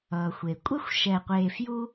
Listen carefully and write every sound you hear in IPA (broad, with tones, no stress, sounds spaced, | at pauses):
ʌː˩ xʷ e˩ kʷʼ ɛ˥ xʷ ʃ ɛ˨ qʷ eː˨ f j u˦